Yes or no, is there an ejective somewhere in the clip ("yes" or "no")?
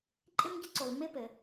yes